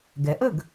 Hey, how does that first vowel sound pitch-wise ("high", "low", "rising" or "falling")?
rising